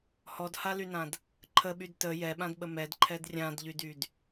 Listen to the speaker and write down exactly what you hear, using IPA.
hɔdhalynãd | ǃʰəɓyd tə jɛɓãdɓə mɛdǃʰɛd rʲãdʎydyd

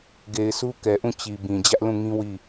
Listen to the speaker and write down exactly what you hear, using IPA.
ɡe˨ɪ̯su˦ kɛ˨ʔũ˦˨ t͡ɕi˨bĩ˨ d͡ʑä˦ʔlũ˦˨ŋĩ˦ wi˦˨

